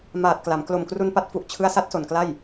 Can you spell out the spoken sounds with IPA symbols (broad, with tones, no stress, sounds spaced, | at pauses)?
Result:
m aː˨˩ t̚ k l a˩˦ m k l o˨˩ m k r u˧ n p a˦˥ t̚ f u˨˩ ʔ t͡ɕʰ ɯ˦˥ a̯ s a˦˥ t̚ s o˨˩ n k l a˥˩ j